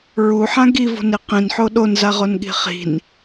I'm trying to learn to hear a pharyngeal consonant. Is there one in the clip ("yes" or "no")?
yes